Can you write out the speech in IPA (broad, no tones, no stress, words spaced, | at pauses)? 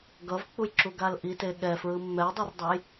ɡʌvk͡pujǁuɡal ʔite ɠɛfɹɯ mːɛe̯dˤordˤɛj